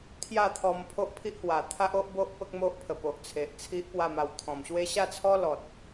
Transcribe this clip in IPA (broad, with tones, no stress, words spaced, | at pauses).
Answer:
t̪ʰja˥˧t̪ʰɔ˧m pʰo˦ʔpʰi˦ʔhwa˨˩ t̪ʰa˦ʔo˦ʔbo˦ʔ pə˦k̚mo˦ʔpʰə˨˩ po˨ʔ t͡sʰe˨ʔ t͡sʰi˦ʔpwa˥˧ma˧w t̪ʰɔ̃˨˩mɕwe˦ ɕa˥˧t͡sʰɔ˦lɔ˨t̚